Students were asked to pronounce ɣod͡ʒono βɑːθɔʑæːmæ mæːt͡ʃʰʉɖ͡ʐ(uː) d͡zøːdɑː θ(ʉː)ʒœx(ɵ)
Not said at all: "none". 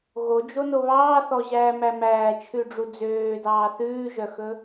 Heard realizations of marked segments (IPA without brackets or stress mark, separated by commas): u, ʉː, ɵ